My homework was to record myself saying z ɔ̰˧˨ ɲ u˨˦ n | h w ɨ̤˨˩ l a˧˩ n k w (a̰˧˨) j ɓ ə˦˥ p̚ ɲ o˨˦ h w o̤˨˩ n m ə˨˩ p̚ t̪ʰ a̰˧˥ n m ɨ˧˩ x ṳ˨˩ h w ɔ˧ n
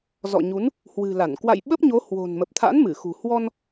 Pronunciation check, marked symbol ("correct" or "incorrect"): correct